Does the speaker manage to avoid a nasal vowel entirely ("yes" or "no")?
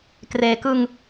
yes